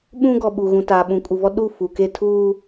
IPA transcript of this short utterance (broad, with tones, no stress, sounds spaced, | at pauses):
ɓ ũ˦ ɡ ɔ˨ ɓ u˨ ɣ ũ˨ t aː˨ ɓ ũ˨ kʼ u˨ v ɔ˦ ɗ u˦˨ f u˨ k e˦ tʰ uː˦